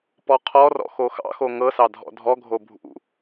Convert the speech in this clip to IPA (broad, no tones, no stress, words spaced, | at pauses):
pɔqʰɔrɔ̰ xoxɑ̰xo ŋɤsɑ dʱɔ̰dʱɔɡʱo bʱṵ